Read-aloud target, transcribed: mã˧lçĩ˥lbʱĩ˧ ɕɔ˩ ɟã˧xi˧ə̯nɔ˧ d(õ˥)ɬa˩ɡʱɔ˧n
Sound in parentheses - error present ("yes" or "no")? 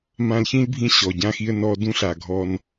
yes